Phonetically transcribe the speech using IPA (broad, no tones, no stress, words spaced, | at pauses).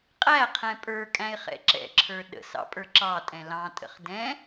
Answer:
qʼæqʰɛ̃ pʼə˞kʼæ̃ɪ̯ χɛ̰ǁɛ̰ǁʰə˞ ɗə̰sɑ̰ pʼə˞ǁɑ tʼɛ̃lɑ̃tʼə̰χ dɛ̃